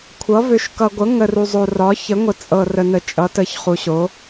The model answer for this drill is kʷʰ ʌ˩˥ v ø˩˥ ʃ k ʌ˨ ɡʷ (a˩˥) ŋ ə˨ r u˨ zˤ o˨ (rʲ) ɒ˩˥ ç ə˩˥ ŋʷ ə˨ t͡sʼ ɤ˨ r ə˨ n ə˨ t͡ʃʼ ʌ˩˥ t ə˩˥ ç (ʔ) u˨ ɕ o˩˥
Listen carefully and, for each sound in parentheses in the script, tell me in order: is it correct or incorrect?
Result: incorrect: ə˩˥, incorrect: r, incorrect: χ

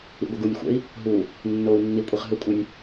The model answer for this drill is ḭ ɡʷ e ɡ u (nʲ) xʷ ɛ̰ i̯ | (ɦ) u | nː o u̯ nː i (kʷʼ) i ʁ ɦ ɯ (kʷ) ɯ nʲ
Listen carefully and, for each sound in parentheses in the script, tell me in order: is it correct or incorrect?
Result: correct, correct, correct, incorrect: kʷʼ

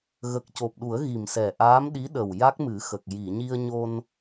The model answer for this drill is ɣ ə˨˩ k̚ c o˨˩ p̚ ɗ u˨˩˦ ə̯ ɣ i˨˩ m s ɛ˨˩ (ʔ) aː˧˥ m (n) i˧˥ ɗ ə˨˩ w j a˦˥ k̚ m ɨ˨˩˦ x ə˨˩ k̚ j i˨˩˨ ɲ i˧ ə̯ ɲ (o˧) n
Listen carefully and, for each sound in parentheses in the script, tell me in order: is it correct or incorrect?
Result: correct, incorrect: ɗ, correct

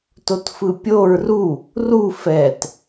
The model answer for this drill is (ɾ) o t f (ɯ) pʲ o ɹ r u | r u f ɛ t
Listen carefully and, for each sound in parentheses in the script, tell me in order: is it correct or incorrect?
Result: incorrect: t, correct

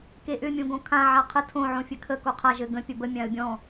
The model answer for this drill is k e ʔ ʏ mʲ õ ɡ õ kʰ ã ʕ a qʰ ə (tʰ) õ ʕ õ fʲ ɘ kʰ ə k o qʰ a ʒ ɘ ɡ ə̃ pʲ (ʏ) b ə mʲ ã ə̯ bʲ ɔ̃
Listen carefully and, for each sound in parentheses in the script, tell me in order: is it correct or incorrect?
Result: correct, incorrect: ə

